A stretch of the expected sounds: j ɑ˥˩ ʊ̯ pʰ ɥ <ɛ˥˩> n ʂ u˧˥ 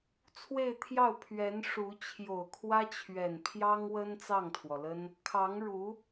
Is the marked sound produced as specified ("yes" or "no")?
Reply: no